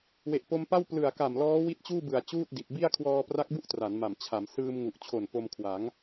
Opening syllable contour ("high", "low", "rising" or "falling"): low